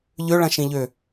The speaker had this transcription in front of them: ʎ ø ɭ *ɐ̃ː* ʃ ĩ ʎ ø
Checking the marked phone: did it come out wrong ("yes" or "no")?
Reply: yes